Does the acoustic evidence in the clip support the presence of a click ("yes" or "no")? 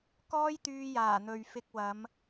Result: no